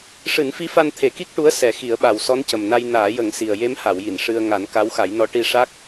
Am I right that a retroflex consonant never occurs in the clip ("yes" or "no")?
no